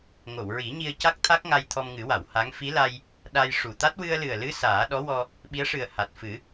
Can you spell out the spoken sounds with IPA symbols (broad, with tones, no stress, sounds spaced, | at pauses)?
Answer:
ŋ o˨˩˨ w ɹ i˨˩˦ ɲ i˧ ə̯ c a˦˥ k̚ t̪ʰ a˦˥ k̚ ŋ a˧ j t̪ʰ ɔ˧ m ŋ ɨ˨˩˦ w a˨˩˨ w h a˧˥ ŋ f i˧˥ l a˧ j | ɗ a˧ j ʂ u˨˩ t̪ a˦˥ t̚ w ɨ˧ ə̯ l ɨ˨˩ ə̯ l ɨ˧˥ s aː˨˩˦ ɗ ɔ˧˥ w ɔ˧ | ɓ i˧˥ ə̯ ʂ ɨ˨˩ ə̯ h a˨˩ t̚ f ɨ˨˩˦